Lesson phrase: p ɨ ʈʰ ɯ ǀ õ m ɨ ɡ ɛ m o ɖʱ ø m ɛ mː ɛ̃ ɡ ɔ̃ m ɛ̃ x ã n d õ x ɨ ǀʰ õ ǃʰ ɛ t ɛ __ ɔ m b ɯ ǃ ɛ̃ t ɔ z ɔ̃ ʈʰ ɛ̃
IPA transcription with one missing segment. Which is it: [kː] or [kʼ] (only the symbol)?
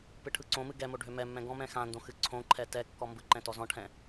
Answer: kː